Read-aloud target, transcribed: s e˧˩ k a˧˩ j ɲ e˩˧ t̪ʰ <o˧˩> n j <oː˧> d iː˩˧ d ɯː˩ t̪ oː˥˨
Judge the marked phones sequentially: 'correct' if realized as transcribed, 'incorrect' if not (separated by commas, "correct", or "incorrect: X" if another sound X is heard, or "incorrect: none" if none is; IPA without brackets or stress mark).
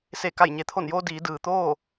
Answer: correct, correct